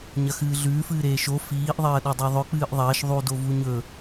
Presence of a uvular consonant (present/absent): absent